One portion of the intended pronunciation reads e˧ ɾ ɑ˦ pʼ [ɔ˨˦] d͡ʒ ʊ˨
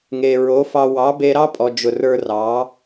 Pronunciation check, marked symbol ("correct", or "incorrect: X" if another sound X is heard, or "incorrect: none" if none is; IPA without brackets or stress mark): incorrect: ɔ˨